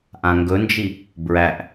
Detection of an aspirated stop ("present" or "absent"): absent